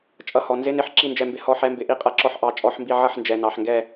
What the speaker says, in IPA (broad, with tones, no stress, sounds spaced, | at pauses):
t͡ʃʼ ʌ˧˥˧ h ɔ˨˩ n z ɪ˧˥˧ n ɪ˦˨ ħ ǁ i˦˨ n d͡ʒ ɛ˦˨ m b ɪ˦˨ h ɔ˧˥˧ ħ ɛ˧˥˧ m b ɪ˦˨ ʔ i˦˨ qʼ ʌ˧˥˧ ǁ ɔ˦˨ ħ ʔ ɑ˦˨ t͡ʃʼ ɔ˧˥˧ ħ m b i˦˨ ʕ ʌ˦˨ ħ n d͡ʒ ɛ˨˩ n ɑ˨˩ ħ ŋ ɡ ɛ˦˨